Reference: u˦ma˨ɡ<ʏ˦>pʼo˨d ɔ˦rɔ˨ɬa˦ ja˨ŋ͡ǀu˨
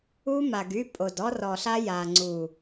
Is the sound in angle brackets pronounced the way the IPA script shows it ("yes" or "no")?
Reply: no